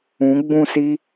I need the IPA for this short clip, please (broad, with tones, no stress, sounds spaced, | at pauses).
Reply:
ũ˨˦ ɡ͡b ũ˦˨ s i˦